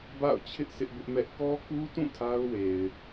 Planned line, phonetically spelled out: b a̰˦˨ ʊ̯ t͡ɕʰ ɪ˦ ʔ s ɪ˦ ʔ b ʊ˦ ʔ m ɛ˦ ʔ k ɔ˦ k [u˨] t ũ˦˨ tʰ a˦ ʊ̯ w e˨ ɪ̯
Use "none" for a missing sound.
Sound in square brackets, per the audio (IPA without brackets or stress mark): u˦